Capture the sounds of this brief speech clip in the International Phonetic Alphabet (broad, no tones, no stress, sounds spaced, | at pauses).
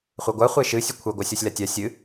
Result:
χʷ e ɡʷ a χʷ e ʃ ɨ sʲ ɨ kʷʰ e ɡʷ a sʲ ɔ sʲ l a tʲ a sʲ ɨ